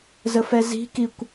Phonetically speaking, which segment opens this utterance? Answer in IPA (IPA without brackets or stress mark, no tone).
z